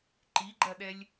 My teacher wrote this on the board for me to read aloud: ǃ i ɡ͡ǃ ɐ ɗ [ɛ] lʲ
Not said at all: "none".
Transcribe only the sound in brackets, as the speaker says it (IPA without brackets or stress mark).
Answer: ɛ